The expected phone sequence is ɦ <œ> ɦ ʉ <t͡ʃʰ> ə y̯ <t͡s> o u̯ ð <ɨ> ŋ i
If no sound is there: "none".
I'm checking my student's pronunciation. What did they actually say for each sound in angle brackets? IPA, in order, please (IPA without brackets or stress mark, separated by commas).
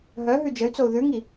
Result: œ, d͡ʒ, t͡s, ʉ